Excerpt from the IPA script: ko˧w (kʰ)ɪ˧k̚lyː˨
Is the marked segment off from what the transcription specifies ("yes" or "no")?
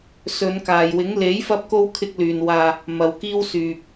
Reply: no